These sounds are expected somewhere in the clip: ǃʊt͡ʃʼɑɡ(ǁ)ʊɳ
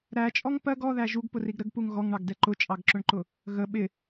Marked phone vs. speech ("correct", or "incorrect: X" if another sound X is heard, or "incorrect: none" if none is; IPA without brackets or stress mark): correct